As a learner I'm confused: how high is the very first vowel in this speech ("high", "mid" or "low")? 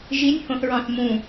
high